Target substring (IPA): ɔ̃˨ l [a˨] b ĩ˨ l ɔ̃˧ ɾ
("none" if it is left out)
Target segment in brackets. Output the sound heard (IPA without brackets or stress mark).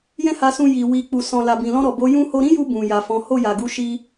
a˨